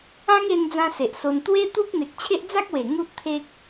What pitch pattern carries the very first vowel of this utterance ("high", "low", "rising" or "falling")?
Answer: high